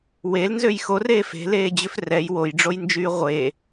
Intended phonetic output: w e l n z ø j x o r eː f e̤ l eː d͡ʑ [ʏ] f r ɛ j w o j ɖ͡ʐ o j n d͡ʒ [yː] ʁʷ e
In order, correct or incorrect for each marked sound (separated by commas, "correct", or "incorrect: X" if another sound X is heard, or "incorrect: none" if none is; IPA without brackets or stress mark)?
correct, correct